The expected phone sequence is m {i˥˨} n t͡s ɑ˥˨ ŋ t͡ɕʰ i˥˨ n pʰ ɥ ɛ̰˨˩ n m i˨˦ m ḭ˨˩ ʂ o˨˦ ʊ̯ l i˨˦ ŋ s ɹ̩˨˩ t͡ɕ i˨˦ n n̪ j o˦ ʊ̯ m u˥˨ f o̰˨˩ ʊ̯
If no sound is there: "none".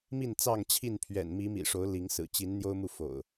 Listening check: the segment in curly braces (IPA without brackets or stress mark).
i˥˨